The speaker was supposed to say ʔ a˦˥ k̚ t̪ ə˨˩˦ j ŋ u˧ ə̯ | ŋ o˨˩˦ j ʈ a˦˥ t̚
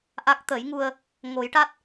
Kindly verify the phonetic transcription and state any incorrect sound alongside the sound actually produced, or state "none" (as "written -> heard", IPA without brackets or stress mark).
none